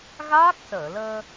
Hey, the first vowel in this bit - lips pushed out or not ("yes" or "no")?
no